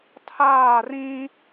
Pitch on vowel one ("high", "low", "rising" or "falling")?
falling